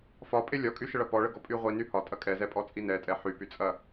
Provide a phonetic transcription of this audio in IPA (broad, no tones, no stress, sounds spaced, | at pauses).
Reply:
f ɒ pʼ e lʲ ɒ kʼ y ʃ ə ɭ ɐ p ɔ ɭ ə ɡ ɔ pʼ y ʁʷ i n y h ɒ tʼ ɐ kʼ ɛ z ɛ pʼ ɔ t͡sʼ i n ɛ tʼ ɛ ħ y p y t͡sʼ ɐ